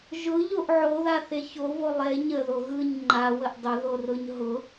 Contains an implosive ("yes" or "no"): no